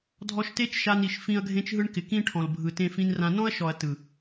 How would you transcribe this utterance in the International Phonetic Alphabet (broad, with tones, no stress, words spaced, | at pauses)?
dʱɔ˧ʃte˦t͡ʃʃa˧n i˨ʃfĩ˧ɐ̯ ɡʱẽ˦t͡ʃɦɯ˦ɳkɪ˨ kĩ˦ʈʰɔ̃˨lbʱɯ˨ tẽ˦fĩ˦nrã˦ nɔ̃˦ɐ̯ʃɔ˨ɐ̯ tɯ˨